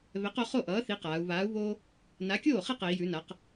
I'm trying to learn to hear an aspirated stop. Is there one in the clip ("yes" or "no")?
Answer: no